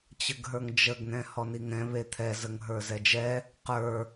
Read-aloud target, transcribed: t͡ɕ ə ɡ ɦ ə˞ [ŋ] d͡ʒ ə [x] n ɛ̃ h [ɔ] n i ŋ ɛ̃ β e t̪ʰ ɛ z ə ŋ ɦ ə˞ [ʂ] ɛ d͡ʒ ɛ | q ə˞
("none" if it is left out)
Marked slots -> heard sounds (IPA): ŋ, ɡ, ɔ, z

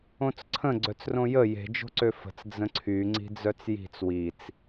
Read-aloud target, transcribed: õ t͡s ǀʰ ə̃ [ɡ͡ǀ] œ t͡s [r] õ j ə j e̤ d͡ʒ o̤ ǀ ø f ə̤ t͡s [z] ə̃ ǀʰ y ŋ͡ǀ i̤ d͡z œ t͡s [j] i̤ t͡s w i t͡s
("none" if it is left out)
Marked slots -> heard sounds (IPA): ɡ͡ǀ, r, d͡z, j

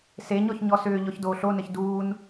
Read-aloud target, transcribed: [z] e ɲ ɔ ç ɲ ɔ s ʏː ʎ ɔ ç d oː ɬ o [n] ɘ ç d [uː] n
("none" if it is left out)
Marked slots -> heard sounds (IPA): s, n, uː

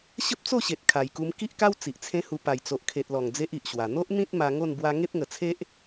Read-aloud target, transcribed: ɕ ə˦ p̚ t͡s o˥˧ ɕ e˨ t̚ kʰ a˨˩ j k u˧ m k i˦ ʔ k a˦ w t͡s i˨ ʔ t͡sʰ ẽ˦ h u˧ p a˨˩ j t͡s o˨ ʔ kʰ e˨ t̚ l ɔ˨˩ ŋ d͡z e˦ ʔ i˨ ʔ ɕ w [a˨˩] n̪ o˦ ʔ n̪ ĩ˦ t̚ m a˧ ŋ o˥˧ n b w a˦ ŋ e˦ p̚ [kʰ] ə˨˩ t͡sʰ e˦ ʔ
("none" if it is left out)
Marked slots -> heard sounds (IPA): a˨˩, ŋ

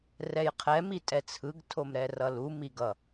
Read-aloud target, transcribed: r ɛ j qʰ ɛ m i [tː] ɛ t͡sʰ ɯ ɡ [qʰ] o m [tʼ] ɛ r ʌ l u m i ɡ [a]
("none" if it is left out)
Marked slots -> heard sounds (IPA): tʼ, tʰ, ɾ, ʌ

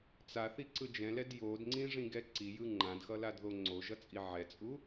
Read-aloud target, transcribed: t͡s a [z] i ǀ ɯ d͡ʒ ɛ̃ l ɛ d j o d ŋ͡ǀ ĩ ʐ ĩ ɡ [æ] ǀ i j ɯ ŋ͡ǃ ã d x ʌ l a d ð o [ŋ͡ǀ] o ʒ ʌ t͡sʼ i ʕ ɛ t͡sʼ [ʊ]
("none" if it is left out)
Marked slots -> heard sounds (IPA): θ, ɛ, ŋ͡ǀ, u

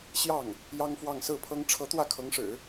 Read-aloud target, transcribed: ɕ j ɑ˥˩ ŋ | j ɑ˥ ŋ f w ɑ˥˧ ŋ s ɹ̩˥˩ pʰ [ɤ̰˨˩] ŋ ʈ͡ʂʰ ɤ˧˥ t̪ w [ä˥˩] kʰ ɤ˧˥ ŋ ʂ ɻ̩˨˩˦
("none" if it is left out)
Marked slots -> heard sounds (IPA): ɤ˥, ä˥˩

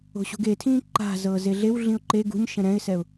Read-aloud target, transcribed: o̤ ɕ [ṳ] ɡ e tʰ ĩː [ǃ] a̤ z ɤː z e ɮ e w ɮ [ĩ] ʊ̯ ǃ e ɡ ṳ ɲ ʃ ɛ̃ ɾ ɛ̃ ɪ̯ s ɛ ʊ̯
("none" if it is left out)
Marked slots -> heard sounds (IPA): ṳ, ǃ, ĩ

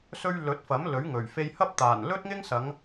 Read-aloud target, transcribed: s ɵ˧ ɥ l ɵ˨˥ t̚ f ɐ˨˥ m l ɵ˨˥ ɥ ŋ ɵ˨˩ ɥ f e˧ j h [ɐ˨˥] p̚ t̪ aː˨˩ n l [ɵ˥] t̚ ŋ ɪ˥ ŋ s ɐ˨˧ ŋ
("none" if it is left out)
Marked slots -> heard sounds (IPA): ɐ˥, ɵ˥

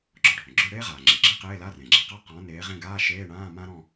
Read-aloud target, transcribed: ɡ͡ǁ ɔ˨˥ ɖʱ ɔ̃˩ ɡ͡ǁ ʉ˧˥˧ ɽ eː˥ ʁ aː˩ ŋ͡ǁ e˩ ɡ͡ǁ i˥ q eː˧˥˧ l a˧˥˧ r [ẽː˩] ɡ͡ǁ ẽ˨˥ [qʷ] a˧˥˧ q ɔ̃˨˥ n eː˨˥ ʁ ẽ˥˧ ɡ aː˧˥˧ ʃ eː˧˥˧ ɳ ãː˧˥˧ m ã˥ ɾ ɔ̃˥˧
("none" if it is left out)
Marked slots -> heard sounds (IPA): ẽ˩, q

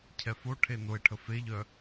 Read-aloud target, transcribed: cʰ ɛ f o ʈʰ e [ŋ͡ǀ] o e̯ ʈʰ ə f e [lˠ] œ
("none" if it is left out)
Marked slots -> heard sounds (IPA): n, ʎ

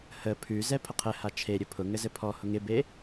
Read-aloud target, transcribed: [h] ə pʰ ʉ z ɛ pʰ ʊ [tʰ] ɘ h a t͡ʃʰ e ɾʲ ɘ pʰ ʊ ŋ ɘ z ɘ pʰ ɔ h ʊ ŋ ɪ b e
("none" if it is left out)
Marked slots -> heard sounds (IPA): h, qʰ

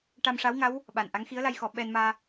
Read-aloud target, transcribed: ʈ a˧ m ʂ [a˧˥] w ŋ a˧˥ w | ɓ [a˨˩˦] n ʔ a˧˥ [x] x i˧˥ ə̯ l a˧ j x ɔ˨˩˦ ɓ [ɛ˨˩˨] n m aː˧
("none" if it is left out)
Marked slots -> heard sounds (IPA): a˧˥, a˨˩, ŋ, ɛ˧

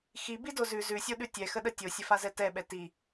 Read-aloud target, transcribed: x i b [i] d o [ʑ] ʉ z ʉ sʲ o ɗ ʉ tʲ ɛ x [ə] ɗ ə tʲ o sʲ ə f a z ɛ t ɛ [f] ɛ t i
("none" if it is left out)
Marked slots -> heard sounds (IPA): i, z, ə, ɓ

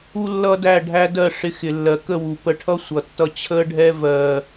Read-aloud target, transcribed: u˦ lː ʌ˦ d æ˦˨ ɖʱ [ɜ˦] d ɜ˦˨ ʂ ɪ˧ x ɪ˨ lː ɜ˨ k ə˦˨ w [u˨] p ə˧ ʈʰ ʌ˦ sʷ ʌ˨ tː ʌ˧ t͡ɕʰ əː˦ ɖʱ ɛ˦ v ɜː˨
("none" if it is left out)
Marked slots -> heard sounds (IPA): æ˦, u˨

